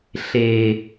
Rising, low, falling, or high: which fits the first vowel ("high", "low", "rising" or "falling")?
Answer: low